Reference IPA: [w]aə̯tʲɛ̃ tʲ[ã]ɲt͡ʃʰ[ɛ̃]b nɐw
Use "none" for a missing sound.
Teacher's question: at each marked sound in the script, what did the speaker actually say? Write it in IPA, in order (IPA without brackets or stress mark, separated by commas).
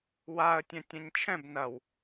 w, ɐ̃, ɛ̃